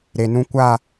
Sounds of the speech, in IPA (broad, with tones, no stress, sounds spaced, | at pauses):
ɾ e˨ n ũ˦ kʷ a˦˨